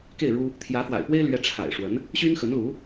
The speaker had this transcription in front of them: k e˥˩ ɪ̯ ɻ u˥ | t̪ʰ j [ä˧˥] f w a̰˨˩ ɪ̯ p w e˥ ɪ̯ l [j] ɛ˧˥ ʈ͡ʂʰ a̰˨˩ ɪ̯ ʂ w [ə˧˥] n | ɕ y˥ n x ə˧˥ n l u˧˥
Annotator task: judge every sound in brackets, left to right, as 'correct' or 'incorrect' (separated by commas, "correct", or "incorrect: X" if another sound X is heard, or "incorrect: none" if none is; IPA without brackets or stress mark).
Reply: correct, incorrect: ɥ, correct